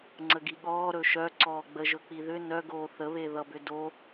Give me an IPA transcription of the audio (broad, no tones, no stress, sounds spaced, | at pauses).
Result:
ŋ͡ǀ ə ɡ i ɠ ɔː ɾ ɵ ʃ œ ǀ ɔː ɡ͡b ə ʒ ɵ k͡p i ð ʏ n œ ɡ oː θ ə β e ð ʌ b ʏ d o